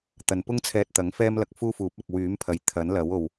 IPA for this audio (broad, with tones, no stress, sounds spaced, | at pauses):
t̪ ɐ˨ n p ʊ˥ ŋ t͡sʰ ɛː˧ t̚ t̪ ɐ˨˥ ŋ f ɛː˥ m l ɐ˧ k̚ f uː˥ f uː˨˥ p̚ ɐ˨ k̚ w yː˨˥ m pʰ ɐ˨ j t̪ʰ ɐ˨˥ n l ɐ˨˥ w o˨ w